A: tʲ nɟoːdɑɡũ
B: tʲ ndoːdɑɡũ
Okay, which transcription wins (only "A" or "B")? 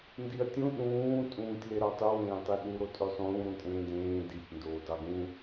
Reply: B